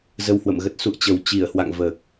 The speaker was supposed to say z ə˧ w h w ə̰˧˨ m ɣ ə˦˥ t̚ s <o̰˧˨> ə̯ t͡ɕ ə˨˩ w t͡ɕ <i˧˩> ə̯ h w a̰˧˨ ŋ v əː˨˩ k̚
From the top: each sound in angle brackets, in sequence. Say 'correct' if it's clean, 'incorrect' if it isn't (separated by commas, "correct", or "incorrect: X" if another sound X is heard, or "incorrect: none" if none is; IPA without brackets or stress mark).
incorrect: ṵ˧˨, correct